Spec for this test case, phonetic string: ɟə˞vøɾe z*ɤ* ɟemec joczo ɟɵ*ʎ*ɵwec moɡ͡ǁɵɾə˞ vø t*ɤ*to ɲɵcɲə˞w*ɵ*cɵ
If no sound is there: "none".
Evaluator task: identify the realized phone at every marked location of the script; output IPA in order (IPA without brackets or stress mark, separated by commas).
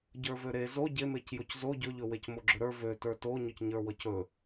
o, ʎ, ə˞, ɤ